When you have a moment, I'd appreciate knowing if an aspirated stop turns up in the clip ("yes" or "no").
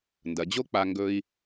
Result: no